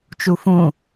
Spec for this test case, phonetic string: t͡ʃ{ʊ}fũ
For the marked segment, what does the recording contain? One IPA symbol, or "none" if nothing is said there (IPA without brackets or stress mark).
u